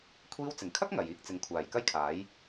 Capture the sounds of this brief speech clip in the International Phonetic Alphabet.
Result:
kʷʰiː˧wt͡sɪ˨˩ŋkʰɐ˥k̚ ŋɐ˨jiː˥k̚ t͡sɪ˨˧ŋkʷʰaː˨˩j kɐ˥jkʰaː˨˥j

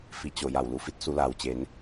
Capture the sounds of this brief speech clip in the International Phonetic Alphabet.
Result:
fi˧˩t͡ɕo˧˩ ja˧˩wlu˧˩fi˧˥t̚ su˩˧laː˩wt͡ɕe˩˧n

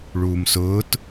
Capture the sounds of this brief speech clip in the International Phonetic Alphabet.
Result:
ɭuːmsʊːt

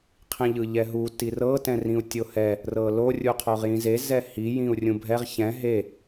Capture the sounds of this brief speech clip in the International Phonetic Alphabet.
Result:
qʰĩʎɯʎɛɦu tirɤ tɛ̃rĩu̯tʲohɛ | rɤlo rʲuqʰoʁjĩze zɛhi jĩu̯rʲũbʱɛʁ çɛ̃ ɦe

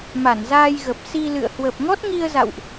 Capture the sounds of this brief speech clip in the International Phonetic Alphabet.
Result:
ma˧˩nzaː˧jɣə˨˩p̚ si˧lɨ̰˧˨ə̯ hwə˨˩p̚ŋɔ˦˥t̚ŋi˧ə̯za̰˧˨wʔ

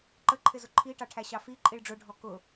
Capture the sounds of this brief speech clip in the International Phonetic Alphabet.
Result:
ǃəǃʰɪzʊ ǃʰiʈɑʈʰæɕɑ fiǃʼiɭ ɖ͡ʐʊɖʱɔ kʊ

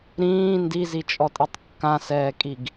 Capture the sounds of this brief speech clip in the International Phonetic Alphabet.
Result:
ɾĩː ndizit͡ʃʼɔtʼitˤ kːãsɛːkʼiɡ

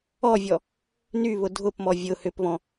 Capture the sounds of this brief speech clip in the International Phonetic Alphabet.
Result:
ɔvʲɔ | nyβʊ dʱʊpmɔ vʲʊ hʏpβɔ̃

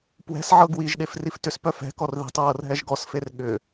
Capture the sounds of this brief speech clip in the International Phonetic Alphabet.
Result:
pwɛ̤s ʕɤɡwiʒɗef riftʏspœ fɛ̤kɔr ði̤tˤɹɤr ɦɛʒɡɔsfer ɠʏ

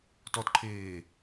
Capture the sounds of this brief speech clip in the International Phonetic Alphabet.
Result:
tɔtǃʰeː

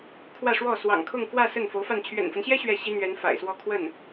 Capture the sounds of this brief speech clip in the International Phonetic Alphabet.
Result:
kʰwä˥˧ʂwɔ˥˩ swɑ̰˨˩ŋ kʰʊ˥˧ŋkwä˥˧ sə˥˩nfo˧˥ʊ̯fa˥˩n t͡ɕʰɥɛ̰˨˩nfə˦nɕjɛ˥ ɕɥɛ˥˩ɕi˥n̪ɥɛ˧˥n fa̰˨˩ɪ̯swɔ˥˧ kʰwə˥˩n

